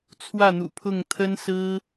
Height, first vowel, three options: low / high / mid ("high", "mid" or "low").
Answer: low